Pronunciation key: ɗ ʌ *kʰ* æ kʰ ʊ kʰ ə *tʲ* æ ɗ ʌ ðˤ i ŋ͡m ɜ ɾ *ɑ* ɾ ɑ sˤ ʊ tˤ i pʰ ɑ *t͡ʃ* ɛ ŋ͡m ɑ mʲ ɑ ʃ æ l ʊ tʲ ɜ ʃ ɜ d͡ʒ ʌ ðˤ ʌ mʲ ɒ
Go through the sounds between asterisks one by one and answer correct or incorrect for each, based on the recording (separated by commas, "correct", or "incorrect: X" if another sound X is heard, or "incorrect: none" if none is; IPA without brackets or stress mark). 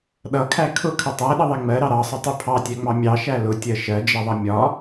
correct, incorrect: tˤ, correct, incorrect: tʲ